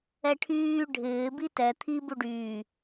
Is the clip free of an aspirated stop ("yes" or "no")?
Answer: no